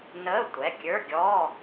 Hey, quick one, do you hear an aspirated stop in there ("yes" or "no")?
no